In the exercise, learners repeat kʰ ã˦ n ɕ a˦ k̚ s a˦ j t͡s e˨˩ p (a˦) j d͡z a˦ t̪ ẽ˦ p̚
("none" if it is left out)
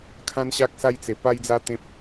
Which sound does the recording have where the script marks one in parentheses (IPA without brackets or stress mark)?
a˦